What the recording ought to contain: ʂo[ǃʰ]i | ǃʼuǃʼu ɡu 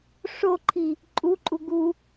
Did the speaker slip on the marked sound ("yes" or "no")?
no